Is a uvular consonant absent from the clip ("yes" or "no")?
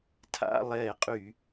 no